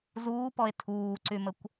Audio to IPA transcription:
z uː p ɔ e̯ tʰ uː ǀ y m ə kʷ

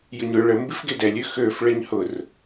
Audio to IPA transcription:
j ʊ ɲ ʊ ɭ ə m b i f ɡ e d ɛ lʲ ø x ø f ɭ ɛ ɲ h ʊ r

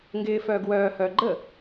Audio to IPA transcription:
ŋ ɡ ɪː f œː ɡ w œː h œː ɡ͡ǃ ə

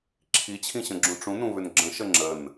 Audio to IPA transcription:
ǁʰ i t͡ɕʰ ĩ ɕ ə̃ ɡ͡ǁ ũ ʈ͡ʂ ũ n ũ β ʏ n ɡ͡ǁ ə̃ ʃ ə ŋ͡ǁ ə n

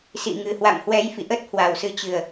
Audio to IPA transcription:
s ḭ˧˨ ŋ ɨ˨˩ h w a̰˧˨ m h w ɛ˨˦ j f ḭ˧˨ ʔ ə˦˥ t̚ h w a˨˩ w s ɨ˨˦ t͡ɕ ɨ˨˩ ə̯

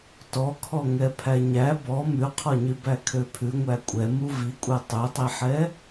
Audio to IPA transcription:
t ɔ kʰ ɔ ŋ ɛ pʰ æ ɲ æ b ɔ m ʉ qʰ ɔ ɲ y b æ kʰ ø pʰ ʉ ŋʷ æ kʷʼ ɛ m u v i kʷʼ ɛ tˤ ø tˤ i ħ ɛ

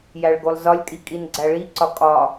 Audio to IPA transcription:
j æ ɭ ɡ o lˠ z ɒ lʲ kʼ i kʼ i n ɡ͡ǀ æ ɭ i ǀ ɒ kʼ ɒ

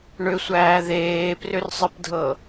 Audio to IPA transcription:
ɳ ʏ sʷ æː ð eː p r ʏ r sˤ ɨ p dʱ ɤ

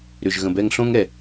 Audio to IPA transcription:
ɾ ʏ˨ ʒ ɣ ə̃˨ b ɛ˧ ŋ ɬ õ˦ ŋ ɛ˨

